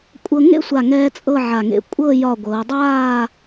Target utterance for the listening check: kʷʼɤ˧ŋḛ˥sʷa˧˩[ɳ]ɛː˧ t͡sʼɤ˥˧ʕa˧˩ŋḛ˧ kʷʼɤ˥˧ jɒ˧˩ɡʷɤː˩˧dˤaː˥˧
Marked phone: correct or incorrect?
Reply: incorrect